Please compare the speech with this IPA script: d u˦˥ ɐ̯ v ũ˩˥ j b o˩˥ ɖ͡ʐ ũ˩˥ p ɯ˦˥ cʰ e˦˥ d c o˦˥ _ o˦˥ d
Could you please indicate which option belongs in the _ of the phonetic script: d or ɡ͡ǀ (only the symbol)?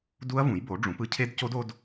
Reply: d